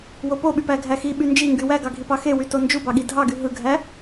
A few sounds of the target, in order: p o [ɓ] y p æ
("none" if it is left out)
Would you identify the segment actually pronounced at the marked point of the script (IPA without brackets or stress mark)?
ɓ